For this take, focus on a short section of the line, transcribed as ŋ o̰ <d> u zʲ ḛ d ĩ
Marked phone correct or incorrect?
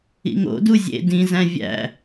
correct